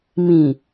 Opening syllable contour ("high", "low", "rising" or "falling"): low